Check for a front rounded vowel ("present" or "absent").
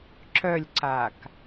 present